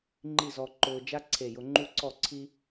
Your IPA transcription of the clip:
ŋ͡ǃ i˥˧ z ɔ˧ ǃ ʊː˧ d͡ʒ a˥ ǀʰ e˧˩ j ʊ˧ ŋ͡ǃ u˥ ǀ ɔ˥˧ ǀʰ i˥

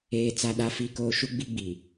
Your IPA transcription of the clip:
eː˨ t͡s a˨ ɗ a˨ f i˨ k oː˨ ʃ u˦ ɡ͡b i˦ ɡ͡b i˨

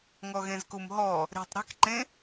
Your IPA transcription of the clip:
ŋ ɔ ɣ ẽ z k u m ɦ ɔ | ɾ e̤ tˤ ɾ e̤ k ǃ ẽ

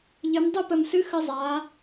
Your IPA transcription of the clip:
ʎ ɨ˩˧ m dˤ ɨ˦˨ p ə˨˩ m s ɨ˧˥ x ə˧˥ zˤ a˩˧

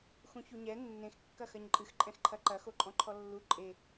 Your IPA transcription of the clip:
x ũ ç u ɲ ɛ nː ẽ x kː ɐ x ɐ ɲ ǃʼ ɨ x ǃʼ ɛ̃ x ǃʰ ɐ ǃ ɐ x o ǃʼ ɔ̃ ǃʰ ɔ lː u ǃʼ e

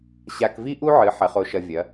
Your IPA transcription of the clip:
ɕ a˧ k v i˥ ʔ u˥ ʕ ɨ˩˥ ħ ɐ˩˥ χ o˧ ʃ ɐ˧ vʲ ɐ˩˥

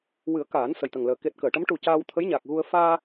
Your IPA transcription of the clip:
w ɨ˨˩˦ ə̯ k aː˨˩˦ n s ə˨˩ j t̪ ə˨˩ ŋ l əː˨˩ k e˨˩ t̚ k əː˨˩˨ ʈ ə˧˥ m ʈ u˨˩ c aː˧ w t̪ʰ ə˧˥ j ɲ a˨˩ k̚ ɣ u˧ ə̯ f aː˧

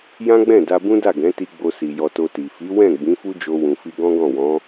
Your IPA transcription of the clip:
j ã˦ ɡ͡b ɛ̃˦˨ d a˧ b ũ˦ d a˦˨ ɡ ɛ̃˨˦ t i˧ ɡ͡b o˧ s i˨ j ɔ˧ t o˧ t i˨ f i˨˦ w ɛ̃˦˨ ɡ͡b ĩ˨˦ f u˦ d͡ʒ o˧ w ũ˨ f i˧ ɡ ɔ̃˦ ɡ ɔ̃˦˨ w ɔ̃˨˦

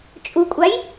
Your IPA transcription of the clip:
t͡ʃʼ u kʷʼ a j

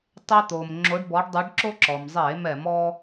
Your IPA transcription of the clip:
tˤ ɛ˦ t̪ oː˩ m ŋ͡ǁ o˨˥ ɖ b ɔ˨˥ ɖ dˤ y˨˥ ɖ ǁ o˦ ǁ ɔ˩ m zˤ eː˧˩˧ m ɛ˧˩˧ m ɔː˦

